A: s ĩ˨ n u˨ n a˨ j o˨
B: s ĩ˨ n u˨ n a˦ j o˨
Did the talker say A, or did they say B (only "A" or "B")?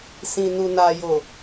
A